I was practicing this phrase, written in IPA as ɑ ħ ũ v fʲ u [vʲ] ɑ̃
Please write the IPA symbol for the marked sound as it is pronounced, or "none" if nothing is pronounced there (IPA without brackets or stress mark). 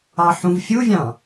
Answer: vʲ